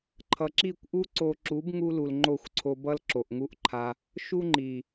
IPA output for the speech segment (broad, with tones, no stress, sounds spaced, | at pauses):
ǃʰ ʌ˨ ǁ i˦˨ kʷ ʔ u˦ ǀ o˧ ǁ u˨˦ b ŋ u˧ l u˨ l ŋ͡ǃ o˦˨ xʷ ǀʰ o˧ b ʌ˦ l ǁ o˨ ʔ ŋ u˦ ʔ ǃʰ a˧ | ʃ u˦ ŋ͡ǃ i˨